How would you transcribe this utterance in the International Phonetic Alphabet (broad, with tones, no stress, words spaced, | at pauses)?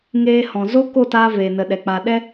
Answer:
ŋeː˧ hɔ̃˨zo˦ ko˦˨taː˧ veː˨nə˨ɗɛ˨ k͡pa˨ɗɛ˧